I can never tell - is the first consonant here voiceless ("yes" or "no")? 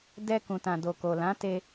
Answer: no